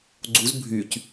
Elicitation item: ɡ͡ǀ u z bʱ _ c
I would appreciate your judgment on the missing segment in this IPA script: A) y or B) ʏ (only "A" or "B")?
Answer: A